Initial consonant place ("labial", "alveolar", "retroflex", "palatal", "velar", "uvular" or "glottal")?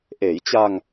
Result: glottal